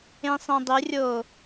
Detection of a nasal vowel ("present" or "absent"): present